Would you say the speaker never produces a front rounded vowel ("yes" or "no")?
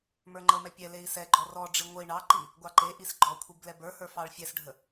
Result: yes